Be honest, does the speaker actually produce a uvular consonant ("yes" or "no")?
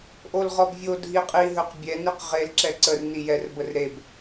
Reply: yes